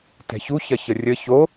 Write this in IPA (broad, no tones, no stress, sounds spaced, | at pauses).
t ɛ̤ ç u ç ɐ ç ə rʲ ə ç o